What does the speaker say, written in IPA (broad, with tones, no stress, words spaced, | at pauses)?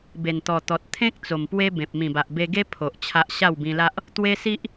be˨˩nt̪ɔ˨˩t̪ɔ˨t̚ t̪ʰẽ˦k̚ t͡so˨˩mpwe˦bẽ˨p̚ mĩ˨˩ba˨ʔbe˧ɡe˦ pʰo˨ʔt͡ɕʰa˦ʔ ɕa˥˧wbĩ˧la˦ʔ | t̪we˦si˦ʔ